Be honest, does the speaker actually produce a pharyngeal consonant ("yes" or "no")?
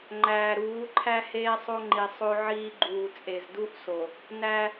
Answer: yes